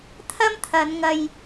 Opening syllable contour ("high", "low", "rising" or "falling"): high